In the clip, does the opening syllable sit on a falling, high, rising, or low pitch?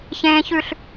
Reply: low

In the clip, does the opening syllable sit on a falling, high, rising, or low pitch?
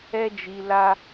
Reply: high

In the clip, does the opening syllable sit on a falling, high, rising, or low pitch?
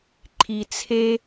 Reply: low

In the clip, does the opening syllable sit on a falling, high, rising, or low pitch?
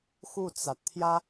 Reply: falling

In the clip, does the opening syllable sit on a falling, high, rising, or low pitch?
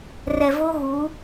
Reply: low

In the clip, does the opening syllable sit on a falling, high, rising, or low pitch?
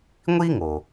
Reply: high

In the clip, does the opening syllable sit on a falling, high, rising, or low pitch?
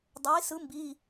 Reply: rising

